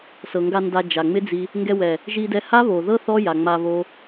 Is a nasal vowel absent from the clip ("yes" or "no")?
yes